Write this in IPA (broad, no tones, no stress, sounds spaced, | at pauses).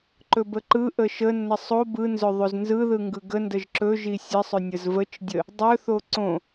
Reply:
ǃ ɵ b ə ǃ ɯ ʔ ə ʃ ə nː ə sˤ o b ɯ n z ɵ ðˤ o z n z ɯ ð ɯ ŋ ɡ ɯ ɡ ə n d ə ʒ ǁ ɵ ʒ i sʲ ə sˤ ɵ nʲ ə z v ə t͡ʃ dʲ ə | dˤ ɵ θ o ǀ õ